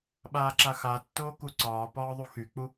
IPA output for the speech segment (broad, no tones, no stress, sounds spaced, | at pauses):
ɓ aː ǁ a x a tː oː k u ǀ ɒː p ɒː ðˤ u x y k͡p u